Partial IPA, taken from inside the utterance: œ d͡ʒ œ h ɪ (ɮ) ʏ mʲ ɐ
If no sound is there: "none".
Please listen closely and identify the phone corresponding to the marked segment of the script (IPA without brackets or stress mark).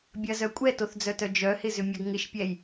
z